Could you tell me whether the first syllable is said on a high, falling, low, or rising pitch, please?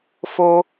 high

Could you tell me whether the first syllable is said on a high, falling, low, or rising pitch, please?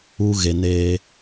high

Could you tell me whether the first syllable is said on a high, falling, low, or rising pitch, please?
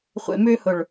low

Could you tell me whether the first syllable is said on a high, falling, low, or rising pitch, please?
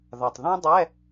low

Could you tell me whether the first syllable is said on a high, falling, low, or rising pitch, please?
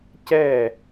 falling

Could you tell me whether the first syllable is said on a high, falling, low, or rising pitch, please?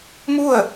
falling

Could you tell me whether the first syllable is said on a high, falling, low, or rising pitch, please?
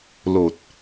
low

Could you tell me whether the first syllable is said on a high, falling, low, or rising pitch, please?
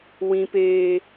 high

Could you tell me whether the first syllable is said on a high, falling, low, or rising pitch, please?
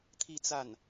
falling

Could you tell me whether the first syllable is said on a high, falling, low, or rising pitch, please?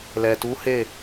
low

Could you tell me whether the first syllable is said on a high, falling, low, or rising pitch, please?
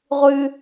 high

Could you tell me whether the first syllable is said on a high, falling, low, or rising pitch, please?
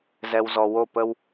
low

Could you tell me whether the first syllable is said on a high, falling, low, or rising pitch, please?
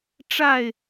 falling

